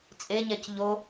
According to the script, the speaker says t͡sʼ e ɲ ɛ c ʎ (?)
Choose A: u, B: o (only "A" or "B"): B